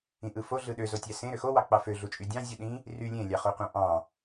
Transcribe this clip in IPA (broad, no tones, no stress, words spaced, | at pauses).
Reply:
ĩʔɯfo ɮɯɗøzotʲæ sẽ ɾøxowɑ k͡pɑføɮut͡ʃʼy dʲɑ̃ zʲuɗĩ | ry lʲẽlʲɑχoqʷɑ̃ ʔɑ̃